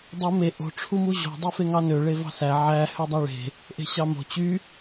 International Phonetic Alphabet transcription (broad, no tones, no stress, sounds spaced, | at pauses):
dˤ u m e ʔ o̤ ʈ͡ʂʰ u m u ʑ o̤ dˤ u f e ŋ ɑ n ø ɭ e v ɑ̤ s æ ʕ æ h ø dˤ æ ɭ e̤ | ʔ e̤ ɕ ɑ m o̤ t͡ɕ y